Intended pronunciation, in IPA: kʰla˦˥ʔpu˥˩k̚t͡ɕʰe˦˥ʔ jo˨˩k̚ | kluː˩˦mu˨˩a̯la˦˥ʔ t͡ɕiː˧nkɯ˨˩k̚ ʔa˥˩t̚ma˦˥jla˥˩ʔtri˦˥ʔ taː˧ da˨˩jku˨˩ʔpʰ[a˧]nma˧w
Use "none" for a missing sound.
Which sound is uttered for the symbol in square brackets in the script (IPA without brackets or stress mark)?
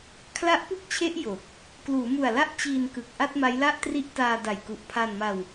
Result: a˧